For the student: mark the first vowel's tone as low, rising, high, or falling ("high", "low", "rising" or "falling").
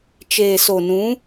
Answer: low